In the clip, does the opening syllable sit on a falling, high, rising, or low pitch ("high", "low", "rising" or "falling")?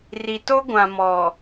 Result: low